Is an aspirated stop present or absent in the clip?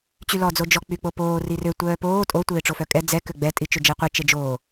absent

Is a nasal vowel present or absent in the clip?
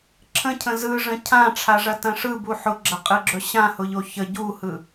present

